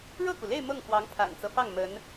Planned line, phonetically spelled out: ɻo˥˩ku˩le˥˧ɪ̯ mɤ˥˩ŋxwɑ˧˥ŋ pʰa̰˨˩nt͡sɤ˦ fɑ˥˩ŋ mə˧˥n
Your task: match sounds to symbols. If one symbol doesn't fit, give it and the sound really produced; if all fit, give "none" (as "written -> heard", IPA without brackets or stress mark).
o˥˩ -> ɤ˥˩